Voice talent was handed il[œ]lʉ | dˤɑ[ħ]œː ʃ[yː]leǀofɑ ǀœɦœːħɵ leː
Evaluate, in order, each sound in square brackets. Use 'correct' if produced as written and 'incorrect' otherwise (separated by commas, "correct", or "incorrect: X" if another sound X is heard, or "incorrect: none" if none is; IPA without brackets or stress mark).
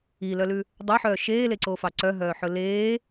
correct, correct, incorrect: eː